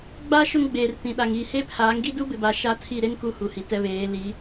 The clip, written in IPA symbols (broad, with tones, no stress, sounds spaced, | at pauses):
ɡ͡b a˦ ʃ ʊ˦ ŋ ɡ͡b eː˨ r t ĩ˨ ɗ a˨ ŋ i˨ h e˦ pʰ aː˨˦ ŋ ɡ i˦ d u˦ b ɪ˨ b a˨ ʃ a˦ tʰ i˦˨ ɾ e˦ n k u˦ h u˨ h i˨ t ɛ˦ β eː˨˦ l i˨˦